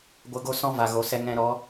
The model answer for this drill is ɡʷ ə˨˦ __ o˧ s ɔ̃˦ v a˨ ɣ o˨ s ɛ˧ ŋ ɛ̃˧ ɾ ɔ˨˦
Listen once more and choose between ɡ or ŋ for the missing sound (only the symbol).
ɡ